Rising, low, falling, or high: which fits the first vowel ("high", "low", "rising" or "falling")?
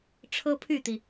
high